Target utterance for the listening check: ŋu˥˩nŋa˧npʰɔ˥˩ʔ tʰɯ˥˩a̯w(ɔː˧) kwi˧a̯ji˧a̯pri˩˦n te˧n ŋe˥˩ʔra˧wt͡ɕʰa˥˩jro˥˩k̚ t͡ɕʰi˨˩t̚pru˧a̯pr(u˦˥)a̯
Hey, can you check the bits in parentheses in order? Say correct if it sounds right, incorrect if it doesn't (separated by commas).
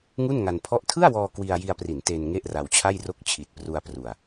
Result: correct, incorrect